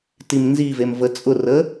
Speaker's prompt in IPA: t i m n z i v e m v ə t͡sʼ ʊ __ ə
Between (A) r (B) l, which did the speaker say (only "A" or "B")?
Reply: A